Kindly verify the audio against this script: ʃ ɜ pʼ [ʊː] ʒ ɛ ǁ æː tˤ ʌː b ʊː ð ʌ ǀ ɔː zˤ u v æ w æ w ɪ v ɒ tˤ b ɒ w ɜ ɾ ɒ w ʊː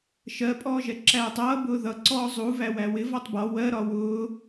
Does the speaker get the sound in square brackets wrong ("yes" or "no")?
yes